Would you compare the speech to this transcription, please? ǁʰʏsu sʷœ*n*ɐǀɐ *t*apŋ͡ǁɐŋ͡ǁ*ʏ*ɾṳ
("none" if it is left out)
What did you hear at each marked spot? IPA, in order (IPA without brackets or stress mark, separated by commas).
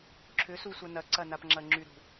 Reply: n, n, y